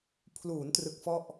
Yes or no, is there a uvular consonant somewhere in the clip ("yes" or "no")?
no